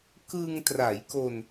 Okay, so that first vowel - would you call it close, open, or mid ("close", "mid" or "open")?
close